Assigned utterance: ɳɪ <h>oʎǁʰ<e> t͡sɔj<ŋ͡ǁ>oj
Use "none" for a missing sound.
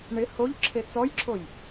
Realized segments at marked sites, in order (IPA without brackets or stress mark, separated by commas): h, e, ǁʰ